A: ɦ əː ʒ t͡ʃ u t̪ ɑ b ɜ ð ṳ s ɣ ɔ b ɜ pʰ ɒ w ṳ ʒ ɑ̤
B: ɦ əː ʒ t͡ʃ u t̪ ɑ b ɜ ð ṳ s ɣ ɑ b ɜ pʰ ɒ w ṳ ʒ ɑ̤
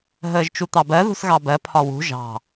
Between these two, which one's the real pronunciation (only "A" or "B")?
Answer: B